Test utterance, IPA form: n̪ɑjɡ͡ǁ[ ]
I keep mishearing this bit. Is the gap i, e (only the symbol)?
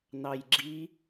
i